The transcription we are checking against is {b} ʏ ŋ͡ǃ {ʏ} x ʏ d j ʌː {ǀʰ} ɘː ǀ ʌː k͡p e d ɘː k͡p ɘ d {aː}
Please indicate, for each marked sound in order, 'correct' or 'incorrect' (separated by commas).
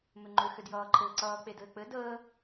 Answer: incorrect, correct, incorrect, incorrect